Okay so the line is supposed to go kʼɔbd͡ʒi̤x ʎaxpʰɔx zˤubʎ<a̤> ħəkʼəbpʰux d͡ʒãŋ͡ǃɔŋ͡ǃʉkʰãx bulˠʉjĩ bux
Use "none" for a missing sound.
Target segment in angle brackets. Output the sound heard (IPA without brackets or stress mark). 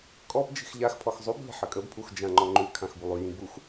a̤